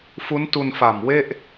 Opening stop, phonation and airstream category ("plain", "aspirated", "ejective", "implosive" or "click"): plain